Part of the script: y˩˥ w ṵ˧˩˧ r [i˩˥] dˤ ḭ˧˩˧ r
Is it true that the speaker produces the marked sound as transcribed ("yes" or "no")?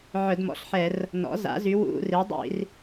yes